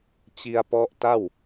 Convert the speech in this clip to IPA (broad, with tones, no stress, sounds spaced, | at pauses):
t͡ɕ i˧ a̯ p ɔ˦˥ ʔ t a˥˩ w